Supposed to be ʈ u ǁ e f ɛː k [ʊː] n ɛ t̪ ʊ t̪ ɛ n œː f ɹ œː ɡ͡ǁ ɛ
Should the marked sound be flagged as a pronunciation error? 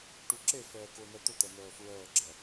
no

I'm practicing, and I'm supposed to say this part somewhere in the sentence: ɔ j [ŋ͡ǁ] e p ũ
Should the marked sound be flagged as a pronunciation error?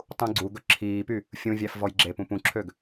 yes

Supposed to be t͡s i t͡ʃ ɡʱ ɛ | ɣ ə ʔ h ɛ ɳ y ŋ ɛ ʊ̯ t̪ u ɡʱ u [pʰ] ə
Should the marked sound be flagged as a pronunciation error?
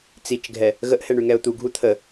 yes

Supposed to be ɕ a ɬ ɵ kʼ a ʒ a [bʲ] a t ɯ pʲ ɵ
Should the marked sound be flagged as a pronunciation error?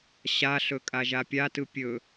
yes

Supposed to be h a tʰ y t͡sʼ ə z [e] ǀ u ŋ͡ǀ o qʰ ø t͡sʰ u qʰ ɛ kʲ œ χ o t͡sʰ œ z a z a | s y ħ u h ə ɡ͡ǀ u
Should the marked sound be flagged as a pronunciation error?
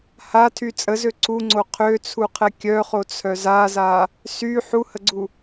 yes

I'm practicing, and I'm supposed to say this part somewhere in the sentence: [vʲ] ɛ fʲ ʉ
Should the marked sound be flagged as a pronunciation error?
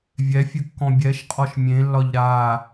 no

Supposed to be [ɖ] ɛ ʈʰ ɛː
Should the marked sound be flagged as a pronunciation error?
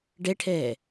no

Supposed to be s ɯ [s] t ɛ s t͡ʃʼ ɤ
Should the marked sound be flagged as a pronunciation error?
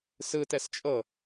yes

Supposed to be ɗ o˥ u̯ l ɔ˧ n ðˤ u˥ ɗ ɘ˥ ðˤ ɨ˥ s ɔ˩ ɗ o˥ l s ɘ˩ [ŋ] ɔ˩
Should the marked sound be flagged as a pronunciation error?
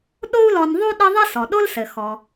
yes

